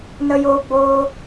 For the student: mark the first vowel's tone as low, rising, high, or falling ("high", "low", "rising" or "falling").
high